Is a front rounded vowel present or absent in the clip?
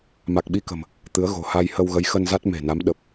absent